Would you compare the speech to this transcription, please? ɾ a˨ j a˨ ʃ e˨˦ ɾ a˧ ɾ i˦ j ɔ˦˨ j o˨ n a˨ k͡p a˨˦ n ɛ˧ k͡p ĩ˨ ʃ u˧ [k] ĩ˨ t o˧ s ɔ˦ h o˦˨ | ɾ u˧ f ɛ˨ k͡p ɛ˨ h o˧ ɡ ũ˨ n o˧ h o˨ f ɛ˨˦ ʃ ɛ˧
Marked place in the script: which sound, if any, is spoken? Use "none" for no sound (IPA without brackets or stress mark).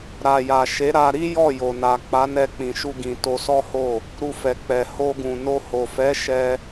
ɡ